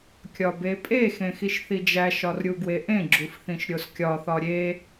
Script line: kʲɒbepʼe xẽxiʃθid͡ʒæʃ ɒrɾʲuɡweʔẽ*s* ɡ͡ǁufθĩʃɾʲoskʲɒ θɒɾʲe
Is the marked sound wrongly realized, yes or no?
yes